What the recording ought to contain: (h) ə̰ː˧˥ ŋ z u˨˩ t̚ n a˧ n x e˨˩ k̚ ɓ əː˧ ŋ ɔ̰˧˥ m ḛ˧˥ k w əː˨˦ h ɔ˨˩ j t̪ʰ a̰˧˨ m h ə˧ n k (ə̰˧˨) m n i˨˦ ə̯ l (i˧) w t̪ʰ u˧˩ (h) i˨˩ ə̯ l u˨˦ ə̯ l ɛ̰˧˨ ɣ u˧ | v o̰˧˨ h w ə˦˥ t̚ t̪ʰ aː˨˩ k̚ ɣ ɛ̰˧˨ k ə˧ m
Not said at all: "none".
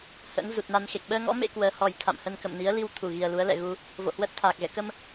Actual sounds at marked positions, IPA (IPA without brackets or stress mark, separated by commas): h, ə̰˧˨, i˧, ɣ